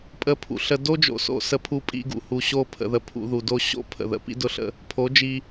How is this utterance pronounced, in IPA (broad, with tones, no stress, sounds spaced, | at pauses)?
pʼ ə˧ pʰ ṵ˨ ɬ ə˧ d o˦ d͡ʒ o̰˧ s o̰˧ s ə˧ pʰ u˧ pʼ ḭ˧ ɡ ṵ˨ h u˨ ɕ o˦˨ pʰ ə̰˨ ð ə˨ pʰ ṵ˧ ð u˨ d o˦ ɕ o̰˦ pʰ ə̰˨ ð ə̰˨ p ḭ˦ d ʊ˦ ɬ ə̰˦ | pʰ o˨˦ d͡ʒ i˧